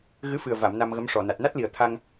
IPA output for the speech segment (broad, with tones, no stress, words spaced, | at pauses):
ɣɨ˧˥fɨ˨˩ə̯va˨˩˨m na˧mɣə˧˥mʂɔ˨˩ na˨˩t̚na˦˥t̚li˨˩ə̯ t̪ʰa˧ŋ